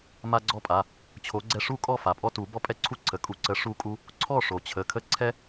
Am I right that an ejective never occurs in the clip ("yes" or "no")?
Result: no